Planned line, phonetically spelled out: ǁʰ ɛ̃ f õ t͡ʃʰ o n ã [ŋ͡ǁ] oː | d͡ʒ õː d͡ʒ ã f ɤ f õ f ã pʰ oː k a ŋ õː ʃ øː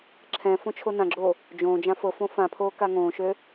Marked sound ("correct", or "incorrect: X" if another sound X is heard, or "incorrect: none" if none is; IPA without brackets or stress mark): incorrect: ɡ͡ǁ